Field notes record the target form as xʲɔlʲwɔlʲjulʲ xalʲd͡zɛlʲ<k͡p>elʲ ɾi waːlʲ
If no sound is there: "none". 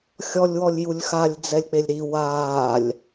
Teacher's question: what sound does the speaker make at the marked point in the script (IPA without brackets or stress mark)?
k͡p